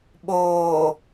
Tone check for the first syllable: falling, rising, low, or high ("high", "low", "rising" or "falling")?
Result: low